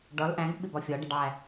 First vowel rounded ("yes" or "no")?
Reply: yes